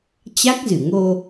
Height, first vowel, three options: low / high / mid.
low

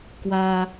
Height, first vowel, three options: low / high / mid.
low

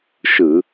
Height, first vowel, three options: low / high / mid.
high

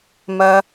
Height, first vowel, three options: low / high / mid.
low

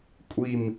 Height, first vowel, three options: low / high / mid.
high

